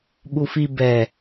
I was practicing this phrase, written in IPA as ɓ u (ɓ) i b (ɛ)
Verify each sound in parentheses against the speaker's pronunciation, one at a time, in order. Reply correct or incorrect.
incorrect: f, correct

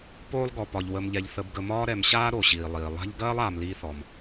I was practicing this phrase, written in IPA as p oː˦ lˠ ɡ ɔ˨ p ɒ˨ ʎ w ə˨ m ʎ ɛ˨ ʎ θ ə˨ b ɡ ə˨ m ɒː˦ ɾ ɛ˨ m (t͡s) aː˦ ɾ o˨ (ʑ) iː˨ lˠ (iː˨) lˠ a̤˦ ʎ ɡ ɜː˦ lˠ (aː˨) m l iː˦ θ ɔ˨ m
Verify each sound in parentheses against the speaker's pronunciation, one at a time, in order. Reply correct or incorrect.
incorrect: ɕ, incorrect: ɕ, correct, correct

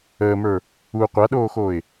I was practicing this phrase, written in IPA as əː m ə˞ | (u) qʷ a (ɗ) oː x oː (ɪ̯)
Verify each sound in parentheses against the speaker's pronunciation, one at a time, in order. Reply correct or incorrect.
correct, correct, correct

